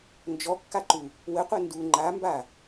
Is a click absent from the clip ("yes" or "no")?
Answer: no